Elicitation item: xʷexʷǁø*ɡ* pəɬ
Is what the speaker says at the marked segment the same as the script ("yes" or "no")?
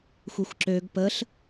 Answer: yes